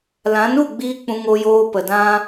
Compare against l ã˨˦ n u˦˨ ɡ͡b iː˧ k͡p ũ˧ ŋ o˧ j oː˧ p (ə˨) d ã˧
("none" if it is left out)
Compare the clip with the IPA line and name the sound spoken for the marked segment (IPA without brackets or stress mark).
ə˨